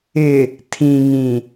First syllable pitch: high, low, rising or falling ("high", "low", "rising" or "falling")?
low